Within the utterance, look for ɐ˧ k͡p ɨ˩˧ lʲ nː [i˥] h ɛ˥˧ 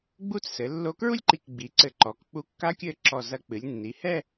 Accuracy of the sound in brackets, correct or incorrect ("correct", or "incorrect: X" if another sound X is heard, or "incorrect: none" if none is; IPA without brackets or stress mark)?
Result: incorrect: i˩˧